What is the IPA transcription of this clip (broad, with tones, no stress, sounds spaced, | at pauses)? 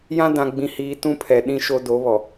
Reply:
j ã˦ d ã˨ ɡ͡b ĩ˨ h iː˨ t ũ˦ pʰ ɛ˨ ɗ ĩ˦ ʃ o˦ d o˨˦ β ɔ˨